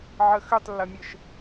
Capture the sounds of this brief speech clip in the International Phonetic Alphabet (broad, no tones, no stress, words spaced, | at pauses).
ʕəxʏtˤlːɐmʲəʃ